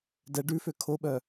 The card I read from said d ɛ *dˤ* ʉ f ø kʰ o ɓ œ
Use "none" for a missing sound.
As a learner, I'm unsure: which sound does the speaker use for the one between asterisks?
ɖ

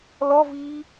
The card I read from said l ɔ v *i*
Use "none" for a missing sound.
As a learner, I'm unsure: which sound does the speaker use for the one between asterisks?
i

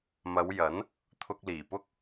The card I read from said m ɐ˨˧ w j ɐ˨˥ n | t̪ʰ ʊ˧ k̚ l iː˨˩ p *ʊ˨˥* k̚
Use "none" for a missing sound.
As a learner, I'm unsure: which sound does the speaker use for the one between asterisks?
ʊ˥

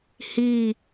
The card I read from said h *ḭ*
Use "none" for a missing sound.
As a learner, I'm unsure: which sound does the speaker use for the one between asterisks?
i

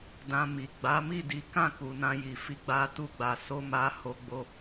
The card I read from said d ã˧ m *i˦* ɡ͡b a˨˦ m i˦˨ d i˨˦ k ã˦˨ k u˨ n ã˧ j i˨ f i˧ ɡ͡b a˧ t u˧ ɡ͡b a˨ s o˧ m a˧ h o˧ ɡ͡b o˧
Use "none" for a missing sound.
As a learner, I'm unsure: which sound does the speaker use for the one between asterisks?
i˨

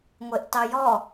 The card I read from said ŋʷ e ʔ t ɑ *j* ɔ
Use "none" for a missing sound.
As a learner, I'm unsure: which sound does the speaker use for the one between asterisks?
j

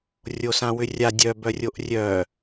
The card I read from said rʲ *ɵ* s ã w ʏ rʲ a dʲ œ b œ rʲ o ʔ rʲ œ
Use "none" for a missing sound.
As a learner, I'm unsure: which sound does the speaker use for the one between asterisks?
o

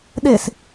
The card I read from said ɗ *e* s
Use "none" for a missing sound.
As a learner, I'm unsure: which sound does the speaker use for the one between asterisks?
e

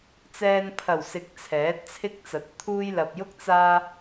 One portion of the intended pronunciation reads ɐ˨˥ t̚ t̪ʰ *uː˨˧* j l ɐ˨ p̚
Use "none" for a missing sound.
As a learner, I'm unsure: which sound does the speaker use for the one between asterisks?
uː˥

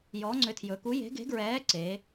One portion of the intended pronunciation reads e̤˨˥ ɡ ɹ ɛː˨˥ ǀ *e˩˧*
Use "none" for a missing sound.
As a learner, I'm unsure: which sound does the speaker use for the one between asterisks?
e˩˧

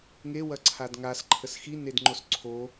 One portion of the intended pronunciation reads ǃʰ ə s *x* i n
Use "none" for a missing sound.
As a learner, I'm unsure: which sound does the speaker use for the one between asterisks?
x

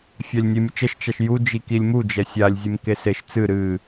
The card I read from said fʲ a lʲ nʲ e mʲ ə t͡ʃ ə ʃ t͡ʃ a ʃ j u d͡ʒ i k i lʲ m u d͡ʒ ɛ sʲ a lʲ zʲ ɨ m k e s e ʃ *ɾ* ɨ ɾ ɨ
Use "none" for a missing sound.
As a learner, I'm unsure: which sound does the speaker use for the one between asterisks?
t͡s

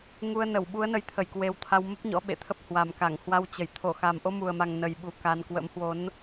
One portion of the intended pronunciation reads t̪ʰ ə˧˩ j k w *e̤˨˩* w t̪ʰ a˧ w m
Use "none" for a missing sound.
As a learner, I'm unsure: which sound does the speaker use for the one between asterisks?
e˨˦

